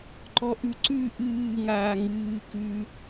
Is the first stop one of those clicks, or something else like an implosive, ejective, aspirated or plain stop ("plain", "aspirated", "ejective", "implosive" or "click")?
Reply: click